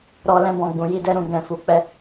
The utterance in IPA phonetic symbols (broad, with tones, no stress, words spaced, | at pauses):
ɾɔ˧lɛ̃˧ bɔ̃˨ɡ͡bũ˨ji˧dɛ˧ ɾũ˨ɡɛ̃˨fu˨˦k͡pɛ˧